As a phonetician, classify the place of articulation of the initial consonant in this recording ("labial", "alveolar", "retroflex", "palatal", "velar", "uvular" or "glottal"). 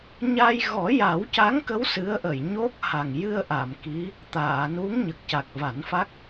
palatal